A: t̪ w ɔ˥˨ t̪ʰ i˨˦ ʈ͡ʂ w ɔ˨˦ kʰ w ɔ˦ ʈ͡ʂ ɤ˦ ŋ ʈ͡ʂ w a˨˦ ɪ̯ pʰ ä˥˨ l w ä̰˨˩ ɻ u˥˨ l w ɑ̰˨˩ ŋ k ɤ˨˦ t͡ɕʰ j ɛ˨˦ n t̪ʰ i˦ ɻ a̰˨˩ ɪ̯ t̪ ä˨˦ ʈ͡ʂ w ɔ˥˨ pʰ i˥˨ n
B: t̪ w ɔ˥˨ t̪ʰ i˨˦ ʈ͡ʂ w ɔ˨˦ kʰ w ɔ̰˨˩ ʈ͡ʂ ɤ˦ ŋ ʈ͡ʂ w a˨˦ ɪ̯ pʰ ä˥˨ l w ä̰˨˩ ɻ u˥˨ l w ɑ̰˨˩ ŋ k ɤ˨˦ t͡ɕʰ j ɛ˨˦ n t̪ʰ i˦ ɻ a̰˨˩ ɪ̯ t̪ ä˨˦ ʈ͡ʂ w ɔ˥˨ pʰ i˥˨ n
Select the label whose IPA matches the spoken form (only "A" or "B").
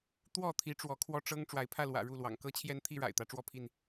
A